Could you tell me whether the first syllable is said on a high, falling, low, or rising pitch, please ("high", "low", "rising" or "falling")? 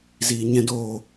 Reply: low